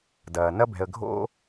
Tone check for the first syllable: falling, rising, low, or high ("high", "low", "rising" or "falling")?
low